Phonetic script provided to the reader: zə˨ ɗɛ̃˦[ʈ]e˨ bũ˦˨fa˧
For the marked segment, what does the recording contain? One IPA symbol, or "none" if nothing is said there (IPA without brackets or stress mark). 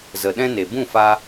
n